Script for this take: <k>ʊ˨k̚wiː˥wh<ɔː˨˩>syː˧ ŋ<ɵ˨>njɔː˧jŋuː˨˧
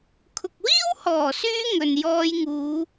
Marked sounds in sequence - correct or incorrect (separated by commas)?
incorrect, correct, correct